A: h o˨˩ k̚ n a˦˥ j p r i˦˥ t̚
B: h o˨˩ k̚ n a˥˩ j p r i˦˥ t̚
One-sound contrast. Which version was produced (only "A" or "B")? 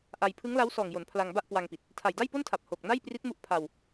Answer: B